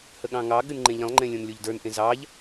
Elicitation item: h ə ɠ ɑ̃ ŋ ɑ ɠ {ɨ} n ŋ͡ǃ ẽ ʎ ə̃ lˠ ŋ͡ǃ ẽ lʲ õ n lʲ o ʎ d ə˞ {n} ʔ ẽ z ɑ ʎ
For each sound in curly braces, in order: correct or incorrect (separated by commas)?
correct, correct